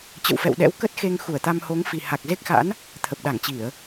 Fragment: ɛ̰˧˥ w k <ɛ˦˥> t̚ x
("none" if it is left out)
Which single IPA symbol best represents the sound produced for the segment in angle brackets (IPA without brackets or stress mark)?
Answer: ə˦˥